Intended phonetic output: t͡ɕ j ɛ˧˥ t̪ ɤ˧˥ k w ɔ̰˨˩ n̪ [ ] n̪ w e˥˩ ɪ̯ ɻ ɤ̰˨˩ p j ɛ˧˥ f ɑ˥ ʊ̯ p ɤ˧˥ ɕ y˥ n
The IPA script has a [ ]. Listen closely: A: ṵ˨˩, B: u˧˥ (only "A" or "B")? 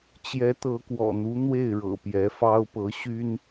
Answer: B